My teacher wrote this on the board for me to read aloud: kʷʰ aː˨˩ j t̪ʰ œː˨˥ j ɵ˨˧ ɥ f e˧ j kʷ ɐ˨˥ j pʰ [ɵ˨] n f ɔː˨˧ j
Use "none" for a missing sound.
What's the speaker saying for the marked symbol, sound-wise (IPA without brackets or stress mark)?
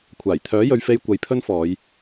ɵ˥